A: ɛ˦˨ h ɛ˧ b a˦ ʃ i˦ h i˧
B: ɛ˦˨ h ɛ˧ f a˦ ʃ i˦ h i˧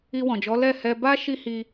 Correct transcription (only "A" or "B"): A